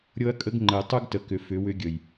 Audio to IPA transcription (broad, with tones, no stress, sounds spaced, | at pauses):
ɾʲ ɤ˦ ɐ̯ kʼ ə˦ ɡ ŋ͡ǃ ə˨ j tˤ u˦ ɡ t ə˨ k ʏ˨ f ʏ˨˦ w ʏ˦ ɡʲ ə˨ j